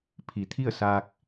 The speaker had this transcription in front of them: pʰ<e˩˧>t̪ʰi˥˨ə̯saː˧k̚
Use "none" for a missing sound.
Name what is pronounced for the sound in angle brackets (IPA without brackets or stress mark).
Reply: i˩˧